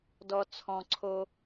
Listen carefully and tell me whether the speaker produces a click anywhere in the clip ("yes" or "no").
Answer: yes